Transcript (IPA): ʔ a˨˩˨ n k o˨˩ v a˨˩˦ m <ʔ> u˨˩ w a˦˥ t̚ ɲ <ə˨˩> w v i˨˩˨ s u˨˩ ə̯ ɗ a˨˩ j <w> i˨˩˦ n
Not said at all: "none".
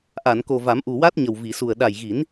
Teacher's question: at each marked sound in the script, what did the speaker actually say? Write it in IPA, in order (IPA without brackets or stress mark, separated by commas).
ʔ, ə˨˩, ɣ